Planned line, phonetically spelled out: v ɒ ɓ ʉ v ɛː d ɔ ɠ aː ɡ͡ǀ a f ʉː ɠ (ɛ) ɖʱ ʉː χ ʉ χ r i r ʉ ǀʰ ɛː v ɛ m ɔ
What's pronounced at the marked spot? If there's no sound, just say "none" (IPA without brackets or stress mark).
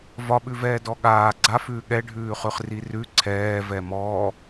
ɛ